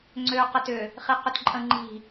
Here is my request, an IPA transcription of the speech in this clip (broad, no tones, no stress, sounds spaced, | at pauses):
ŋ͡ǀ ø q ə t ʏ | χ i q ʏ t ǃʼ ə̃ ŋ͡ǃ i̤